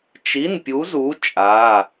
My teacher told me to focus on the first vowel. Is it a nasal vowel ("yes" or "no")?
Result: no